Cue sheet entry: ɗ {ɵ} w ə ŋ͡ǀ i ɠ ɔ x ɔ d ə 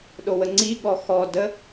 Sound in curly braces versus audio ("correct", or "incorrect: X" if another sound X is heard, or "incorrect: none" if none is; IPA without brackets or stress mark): incorrect: o